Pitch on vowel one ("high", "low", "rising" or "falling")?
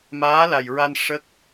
rising